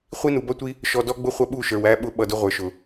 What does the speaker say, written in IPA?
χʷ i˦ n u˨ b ʌ˦ tʷ i˦ | ʃ ɔ˨ d ɔ˦ ɡ͡b ʊ˦ χʷ ʌ˧ ɓ u˦˨ ʃ ə˞˨ w æ˦ ɓ ʊ˦ ɓ ʌ˨ d ʊ˧ ʁʷ ə˞˨ ʃ ʊ˨

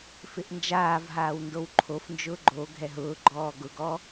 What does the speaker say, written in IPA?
f ɪ ʔ n d͡ʒ aː v ɦ aː w n d o w ǃʰ o f n d͡ʒ ʊː ɡ͡ǃ o ɡʱ ɛ ɦ ʊː ɡ͡ǃ ɔː ɡ ʊ ɡ ɔ

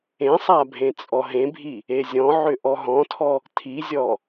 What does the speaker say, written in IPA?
ẽ sˤ a bʱ ẽ t͡sʼ ɔ ɦ ẽ bʱ i | e zʲ ɔ̃ ʕ ʏ ʔ ɔ ɦ ɔ̃ tʰ ɔ | tʰ i zʲ ɔ

